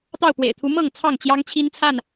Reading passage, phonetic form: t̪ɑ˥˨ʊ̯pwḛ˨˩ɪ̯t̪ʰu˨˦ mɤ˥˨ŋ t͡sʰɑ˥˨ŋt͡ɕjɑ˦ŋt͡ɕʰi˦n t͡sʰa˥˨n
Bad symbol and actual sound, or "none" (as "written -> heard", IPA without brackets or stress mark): none